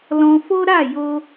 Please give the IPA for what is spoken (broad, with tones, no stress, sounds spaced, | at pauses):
l ɔ̃˧ f o˦ ɾ a˦˨ j o˧